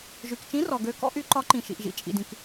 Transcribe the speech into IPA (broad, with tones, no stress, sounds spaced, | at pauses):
ʒ y˩ k t͡ʃ ĩ˨˥ r ɔ˩ ɡ ø˨˥ k ɔ̰˨˥ ʔ y˨˥ ǃ ɒ˨˥ ǃ ĩ˩ ʃ ḭ˩ ʔ ʒ ḭ˩ t͡ʃʼ ḭ˩ d ĩ˩ k